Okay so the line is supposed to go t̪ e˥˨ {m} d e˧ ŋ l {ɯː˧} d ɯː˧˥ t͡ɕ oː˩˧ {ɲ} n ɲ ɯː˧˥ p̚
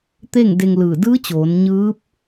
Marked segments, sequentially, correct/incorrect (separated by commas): incorrect, incorrect, incorrect